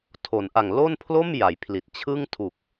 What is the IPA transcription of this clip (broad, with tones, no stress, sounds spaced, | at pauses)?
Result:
tʰ o˩˦ n ʔ a˨˩ ŋ l o˥˩ n pʰ l o˥˩ m j a˩˦ j pʰ l i˨˩ t̚ t͡ɕʰ ɯ˥˩ ŋ tʰ u˨˩ k̚